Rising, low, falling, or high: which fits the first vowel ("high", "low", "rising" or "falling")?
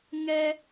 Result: high